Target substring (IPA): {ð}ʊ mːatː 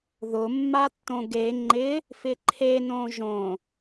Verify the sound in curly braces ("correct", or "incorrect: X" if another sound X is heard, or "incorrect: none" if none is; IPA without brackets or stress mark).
correct